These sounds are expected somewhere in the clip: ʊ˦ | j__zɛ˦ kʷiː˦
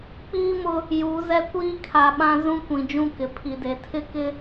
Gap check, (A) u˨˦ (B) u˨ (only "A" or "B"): A